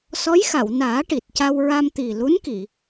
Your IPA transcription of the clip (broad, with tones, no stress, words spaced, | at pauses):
sɔ˧˥jxa˨˩˨wnaː˨˩˦ ʈi˨˩t̚ca˧wɹa˧m t̪i˨˩ lu˧˥nki˨˩˨